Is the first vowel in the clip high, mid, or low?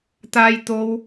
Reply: low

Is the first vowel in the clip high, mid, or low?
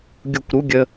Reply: high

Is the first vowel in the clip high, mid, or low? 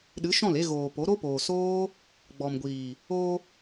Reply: high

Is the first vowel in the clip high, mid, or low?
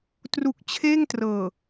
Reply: high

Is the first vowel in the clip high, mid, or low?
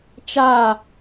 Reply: low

